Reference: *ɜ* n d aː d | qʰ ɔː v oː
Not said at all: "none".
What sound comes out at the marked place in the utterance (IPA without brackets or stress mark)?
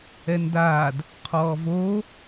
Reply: ɛ